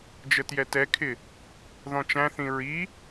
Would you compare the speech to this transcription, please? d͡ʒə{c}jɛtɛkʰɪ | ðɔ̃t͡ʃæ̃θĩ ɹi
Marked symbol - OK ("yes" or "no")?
no